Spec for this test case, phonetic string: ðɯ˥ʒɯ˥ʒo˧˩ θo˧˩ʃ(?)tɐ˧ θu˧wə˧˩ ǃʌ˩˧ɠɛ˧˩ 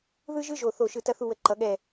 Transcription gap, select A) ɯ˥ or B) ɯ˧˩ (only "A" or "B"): B